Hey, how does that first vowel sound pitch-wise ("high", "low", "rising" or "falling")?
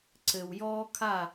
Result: low